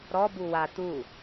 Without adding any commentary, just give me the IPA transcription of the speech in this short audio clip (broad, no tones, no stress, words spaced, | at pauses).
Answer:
ɾɔbu wa t̪u